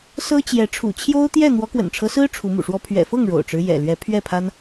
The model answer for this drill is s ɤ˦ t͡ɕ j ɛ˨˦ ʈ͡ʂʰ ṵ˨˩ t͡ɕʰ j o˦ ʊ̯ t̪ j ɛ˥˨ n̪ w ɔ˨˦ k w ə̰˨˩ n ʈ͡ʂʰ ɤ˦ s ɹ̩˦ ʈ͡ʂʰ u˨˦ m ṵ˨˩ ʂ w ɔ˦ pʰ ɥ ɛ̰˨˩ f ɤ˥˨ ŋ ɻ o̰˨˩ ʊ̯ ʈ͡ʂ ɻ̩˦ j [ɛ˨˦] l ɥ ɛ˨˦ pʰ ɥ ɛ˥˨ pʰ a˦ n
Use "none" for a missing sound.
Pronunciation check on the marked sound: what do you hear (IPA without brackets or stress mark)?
ɛ̰˨˩